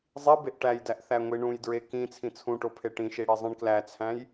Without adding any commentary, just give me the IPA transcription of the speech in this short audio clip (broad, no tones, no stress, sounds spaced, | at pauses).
zˤ i b e ʔ ʈ æ j d æ ʔ θ æ ŋʷ i ɳ ũ j d ɹ e k ĩ t͡sʰ ĩ t͡sʰ ũ ʈ o pʰ e ʈ ĩ ʃ i ɽ i zˤ ĩ ɳ k l æ t͡sʰ æ̃ j